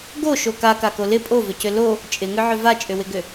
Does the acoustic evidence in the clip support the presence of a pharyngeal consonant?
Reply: yes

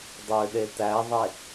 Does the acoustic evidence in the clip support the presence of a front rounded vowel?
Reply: yes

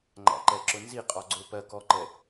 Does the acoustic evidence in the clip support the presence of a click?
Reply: yes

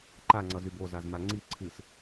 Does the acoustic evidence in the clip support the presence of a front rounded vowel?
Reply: yes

